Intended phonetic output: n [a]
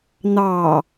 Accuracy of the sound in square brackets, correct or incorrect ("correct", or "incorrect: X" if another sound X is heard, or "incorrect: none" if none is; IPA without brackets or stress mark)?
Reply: incorrect: ɑ